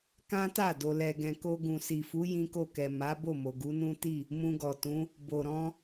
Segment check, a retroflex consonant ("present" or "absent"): absent